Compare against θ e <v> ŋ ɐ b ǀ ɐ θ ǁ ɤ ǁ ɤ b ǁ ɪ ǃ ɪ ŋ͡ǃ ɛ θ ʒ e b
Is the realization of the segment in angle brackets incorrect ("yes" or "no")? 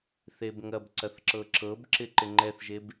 yes